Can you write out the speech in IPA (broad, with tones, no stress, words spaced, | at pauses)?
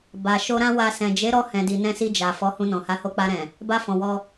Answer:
ba˨ ʃo˧ɾã˦wa˧ sɛ̃˨d͡ʒe˨˦ɾɔ˧hɛ̃˨ di˨nɛ̃˧si˧ d͡ʒa˨ fɔ˨˦hũ˧nɔ̃˨ ha˨˦ho˧k͡pa˧ɾɛ̃˨ | ba˧fɔ̃˨ wɔ˧